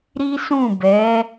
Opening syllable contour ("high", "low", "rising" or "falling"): high